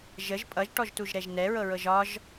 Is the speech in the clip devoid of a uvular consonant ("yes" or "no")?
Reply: yes